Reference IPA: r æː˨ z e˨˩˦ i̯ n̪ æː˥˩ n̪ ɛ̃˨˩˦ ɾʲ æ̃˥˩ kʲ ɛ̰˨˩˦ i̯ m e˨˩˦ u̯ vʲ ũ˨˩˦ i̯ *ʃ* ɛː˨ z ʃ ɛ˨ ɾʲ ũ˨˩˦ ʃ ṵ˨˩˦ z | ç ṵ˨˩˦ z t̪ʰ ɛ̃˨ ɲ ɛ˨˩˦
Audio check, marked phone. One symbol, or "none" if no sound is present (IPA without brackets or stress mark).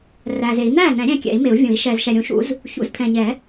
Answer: ʃ